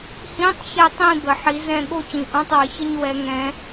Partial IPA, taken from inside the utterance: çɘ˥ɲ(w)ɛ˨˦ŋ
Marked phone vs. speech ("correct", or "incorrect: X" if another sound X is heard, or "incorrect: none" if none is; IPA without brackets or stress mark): correct